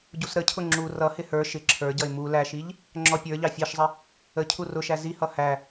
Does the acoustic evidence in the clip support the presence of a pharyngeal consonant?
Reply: no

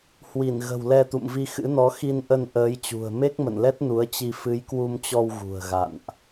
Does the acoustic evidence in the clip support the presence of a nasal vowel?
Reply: no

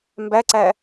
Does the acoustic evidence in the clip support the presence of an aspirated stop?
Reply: no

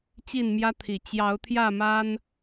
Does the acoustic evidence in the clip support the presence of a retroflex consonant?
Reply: no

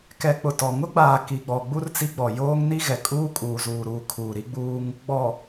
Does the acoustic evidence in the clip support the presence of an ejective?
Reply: yes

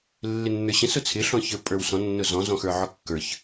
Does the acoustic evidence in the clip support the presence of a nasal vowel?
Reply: yes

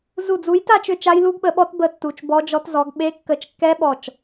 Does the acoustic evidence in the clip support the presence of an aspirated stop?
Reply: no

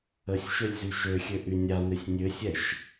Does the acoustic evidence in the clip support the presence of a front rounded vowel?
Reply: yes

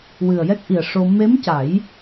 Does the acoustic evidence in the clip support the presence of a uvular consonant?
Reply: no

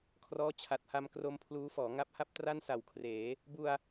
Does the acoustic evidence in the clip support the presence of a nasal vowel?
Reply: no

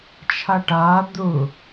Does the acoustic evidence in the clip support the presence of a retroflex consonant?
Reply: yes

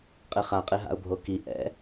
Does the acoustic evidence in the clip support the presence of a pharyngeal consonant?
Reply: no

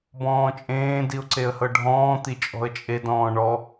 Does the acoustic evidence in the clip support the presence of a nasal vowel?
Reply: yes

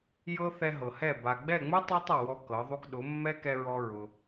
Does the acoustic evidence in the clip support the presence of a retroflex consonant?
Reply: no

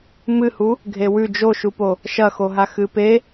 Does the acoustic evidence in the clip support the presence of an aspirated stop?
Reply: no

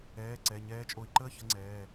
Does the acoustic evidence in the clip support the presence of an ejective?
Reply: yes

